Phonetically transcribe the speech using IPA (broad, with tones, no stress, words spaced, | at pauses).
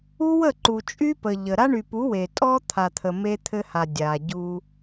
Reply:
u˦wə˦˨ ǃu˨t͡ʃʼy˦ pə˨ʎə˨ ɾa˦ɳy˨pu˨˦ we˨ tʼɔ˦t̪ʰa˨t̪ʰə˨ me˦t̪ʰɘ˦ha˨ dʲa˨ɟu˦